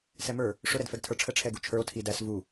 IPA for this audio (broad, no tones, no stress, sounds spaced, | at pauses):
s ɛ m ə˞ | ʂ ʊ ɾ ɛ d f ɛ ɡ tʰ ə˞ ʈ͡ʂʰ ə ʈ͡ʂʰ ɛ ɡ u t͡ʃʰ ə˞ o̯ tʰ i d æ s v u